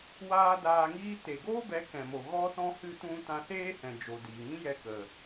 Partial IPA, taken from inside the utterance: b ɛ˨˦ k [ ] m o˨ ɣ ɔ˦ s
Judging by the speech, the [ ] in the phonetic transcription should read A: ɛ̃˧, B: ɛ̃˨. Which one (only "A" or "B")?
B